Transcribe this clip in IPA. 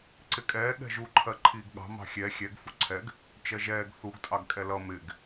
ǀɪkʼɛː ɠɛ̤ʒu ǃʰɜǃʰiːɡɠɑ̤ mɑ̤xʲɛ xʲɛɡ fuǀʰɛɡ | t͡ʃɜʒɛːɡ θuɡ tʼɑɡkʼɛlʌ mɪɡ

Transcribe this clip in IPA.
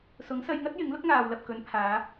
sʊ˨˥ŋsɐ˧jŋɐ˥t̚ jɪ˨˥ŋ lʊ˥k̚ŋaː˨wlɐ˨p̚ kɵ˨˧npʰaː˨˧

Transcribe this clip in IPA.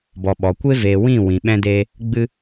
bɔ˨ɓɔ˨kʷe˦ veː˨wĩ˦˨ wĩ˨ ɓɛ̃˦deː˦ | ɡ͡bɨ˦

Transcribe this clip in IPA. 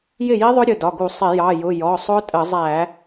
jɪ˥˩ji˦˥ðˤʊ˦˥ɾʲʊ˩˧˩ dɒ˩˧˩ ɡu˧˩˧ sˤɪ˧˩˧jɑ˩˧˩jʊ˩˧˩ jɔ˩˧˩sˤʊ˦˥tʼə˧˩˧zˤæ˧˩˧

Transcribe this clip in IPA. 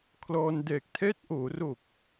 kʰlɔː˧n dɛː˨˩k̚tʰɛː˦˥t̚ʔoː˩˦ro˨˩k̚

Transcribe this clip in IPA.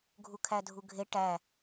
ɡʱukʰædʱuɡʱe ʈæ

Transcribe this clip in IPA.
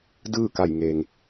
dɯː˥˨ka˧˩jŋeː˩ŋ

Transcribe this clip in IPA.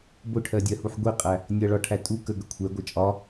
bʊʈʰɜdʲɜhuħ ɡʷiqʼæ | nʲʌ ɭɒʈʰæ tʼu kə ɡəkʷʰɛ ɡʷʌt͡ʃʼɒ

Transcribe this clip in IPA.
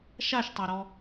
ʃaʃtˤaɾɔ

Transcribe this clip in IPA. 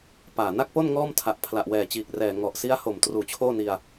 paː˨˩ na˥˩k̚po˥˩n ŋɔː˥˩mtʰa˨˩ʔ pʰla˨˩ʔwɛː˨˩t͡ɕiː˨˩k̚rɛː˨˩ ŋɔ˨˩ʔsi˦˥a̯ho˨˩m truː˨˩t͡ɕʰoː˥˩ni˧a̯

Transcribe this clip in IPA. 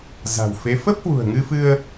za̤˨˩wfe˨˦ fə˦˥p̚hwṳ˨˩ə̯ŋɨ˧fɨ˧ə̯

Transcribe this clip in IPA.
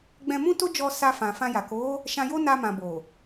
ɡ͡bɛ̃˧mũ˦to˦d͡ʒɔ˧ sa˧fã˨ fã˧ja˨ ko˨˦ | ʃã˧jo˦ na˧mã˨ bo˨

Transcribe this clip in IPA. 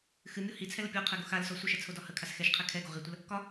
xɨmʲo hit͡sʰɛlə pʲɒqʰɛɡo xalsɔ sʷɨʃɛt͡sʰodɒ həkʰas xɛʃqʰɛ kʰɛɡo ʁitʷəl | kɒ

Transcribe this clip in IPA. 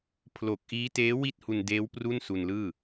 pʰlo˨˩k̚ʔiː˦˥teː˦˥ wi˥˩t̚hu˧ndeː˦˥w pru˥˩nsu˧nlɯː˥˩

